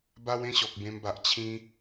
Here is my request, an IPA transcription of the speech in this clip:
ba˦w ẽ˦ɕɔ˨k̚bẽ˧mba˨ʔ t͡ɕʰĩ˧

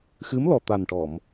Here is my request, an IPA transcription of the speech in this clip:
xɨ˧˥mlɔ˨˩ t̪a˨˩nʈɔ˨˩˨m

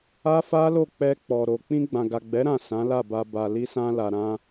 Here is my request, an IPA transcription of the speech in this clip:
a˦fa˦lo˦˨ k͡pɛ˧ k͡pɔ˨ɾo˨ k͡pĩ˧ɡ͡bã˨ɡa˨ɡ͡bɛ˨˦ ɾã˦˨ sã˨˦la˦˨ba˧ ba˨li˧sã˧ la˨ɾã˧

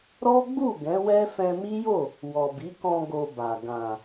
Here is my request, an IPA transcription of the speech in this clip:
ɾɔ˦ɡ͡bu˦˨ ɡɛ̃˨˦wɛ˦fɛ̃˧ mi˦jo˦˨ | wɔ˨bi˨˦kɔ̃˧ ɡo˧ba˨ ɡã˨

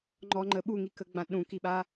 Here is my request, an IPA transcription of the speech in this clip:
ŋ͡ǃɔŋ͡ǃə ɓuŋikəɡ͡bã ɗũkiɓa

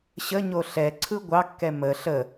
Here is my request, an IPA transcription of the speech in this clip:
ɕəɲo ɬɛ ǀʰɯɡʷɑkːɛ mə ɬə

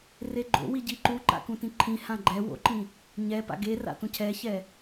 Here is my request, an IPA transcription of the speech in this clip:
reɡ͡ǃo̰wi ɟiǃuǃa̰ kũtĩǃʰĩhã ɡ͡ǃɛ wo̰ǃĩ | ɲɛ pa̰ɡera̰ tũcʰɛçɛ

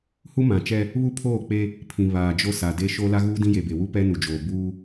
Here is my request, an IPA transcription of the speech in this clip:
hu˦mã˨t͡ʃɛ˦ | βu˦pʰoː˦˨k͡pe˦ | pʰĩ˨ βaː˨d͡ʒo˦ sa˨de˦ʃo˦ la˦ɣuː˦ dĩ˦je˨be˨wu˦ pɛ˦nu˨d͡ʒoː˨ buː˦

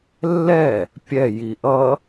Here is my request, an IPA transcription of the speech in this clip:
lːɛ | pʲɛji ʔʌ

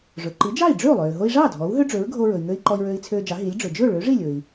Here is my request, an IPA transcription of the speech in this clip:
ʐɵ˩ǃi˩˥d͡ʒɑ˥˩i̯ɖ͡ʐø˥˩u̯ lˠøː˩ɦo˧i̯ʐɑː˥˩ dʱɔ˩˥u̯ɦø˥ɖ͡ʐø˩˥ɹ ɡʱo˧ɹɵ˩i̯ŋø˧i̯ ǃɔ˧i̯ɹøː˧i̯t͡sʰøː˧d͡ʒɑ˩˥ ɦi˩˥lʲɖ͡ʐɵ˩ d͡ʒɵ˥˩ɭø˩˥ʐi˥˩ lʲɵ˩i̯

